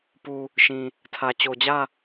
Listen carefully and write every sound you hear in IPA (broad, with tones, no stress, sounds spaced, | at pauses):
p u˨ | ʃ ĩ˨ | tʰ ä˨ t͡ɕ o˨ d͡ʑ ä˦˨